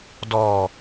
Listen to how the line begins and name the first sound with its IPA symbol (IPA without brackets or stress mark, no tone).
d